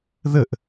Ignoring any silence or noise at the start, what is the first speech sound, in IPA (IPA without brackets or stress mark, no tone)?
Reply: ð